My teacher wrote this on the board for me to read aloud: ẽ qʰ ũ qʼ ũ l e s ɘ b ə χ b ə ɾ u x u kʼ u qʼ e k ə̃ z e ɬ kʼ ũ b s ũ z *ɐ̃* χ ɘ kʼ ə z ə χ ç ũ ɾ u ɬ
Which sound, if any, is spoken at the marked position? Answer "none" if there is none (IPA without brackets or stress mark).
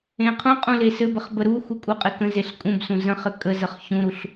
ə̃